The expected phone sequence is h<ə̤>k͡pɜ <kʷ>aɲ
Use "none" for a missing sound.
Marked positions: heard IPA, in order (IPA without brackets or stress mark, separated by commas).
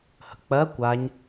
ə̤, kʷ